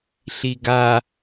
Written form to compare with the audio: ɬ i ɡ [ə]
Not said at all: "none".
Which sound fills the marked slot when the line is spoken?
a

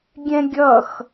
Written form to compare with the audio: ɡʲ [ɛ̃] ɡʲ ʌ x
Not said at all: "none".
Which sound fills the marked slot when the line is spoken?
ɛ̃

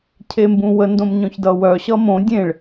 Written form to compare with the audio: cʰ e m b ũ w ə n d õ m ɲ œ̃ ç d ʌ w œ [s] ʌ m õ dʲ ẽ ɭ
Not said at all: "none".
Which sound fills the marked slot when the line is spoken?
ɕ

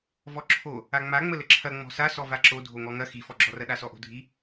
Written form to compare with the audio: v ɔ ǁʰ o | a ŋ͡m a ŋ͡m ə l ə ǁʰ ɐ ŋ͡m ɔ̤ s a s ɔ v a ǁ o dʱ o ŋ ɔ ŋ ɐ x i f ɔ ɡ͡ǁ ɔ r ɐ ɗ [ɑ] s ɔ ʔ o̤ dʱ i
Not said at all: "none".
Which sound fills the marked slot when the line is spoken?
a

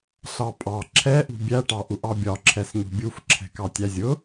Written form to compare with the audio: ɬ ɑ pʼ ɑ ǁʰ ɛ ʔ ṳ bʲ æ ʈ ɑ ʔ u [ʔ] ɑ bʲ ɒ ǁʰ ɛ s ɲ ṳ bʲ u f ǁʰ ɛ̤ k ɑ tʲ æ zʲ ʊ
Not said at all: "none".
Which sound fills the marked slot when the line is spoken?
ʔ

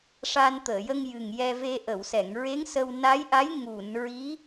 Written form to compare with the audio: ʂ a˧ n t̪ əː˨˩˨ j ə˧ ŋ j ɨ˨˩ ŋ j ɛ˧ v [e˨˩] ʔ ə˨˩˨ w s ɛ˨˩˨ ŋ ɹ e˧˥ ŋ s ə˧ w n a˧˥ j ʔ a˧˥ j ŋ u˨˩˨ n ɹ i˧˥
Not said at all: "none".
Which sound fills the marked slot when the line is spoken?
e˧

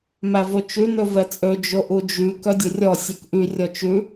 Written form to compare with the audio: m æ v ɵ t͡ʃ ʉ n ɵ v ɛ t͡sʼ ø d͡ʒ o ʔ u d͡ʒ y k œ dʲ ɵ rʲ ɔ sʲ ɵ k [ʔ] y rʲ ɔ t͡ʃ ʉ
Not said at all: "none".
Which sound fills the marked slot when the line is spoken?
ʔ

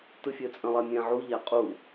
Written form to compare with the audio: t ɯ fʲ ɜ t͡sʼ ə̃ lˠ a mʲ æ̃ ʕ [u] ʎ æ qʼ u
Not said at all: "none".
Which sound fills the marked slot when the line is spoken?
u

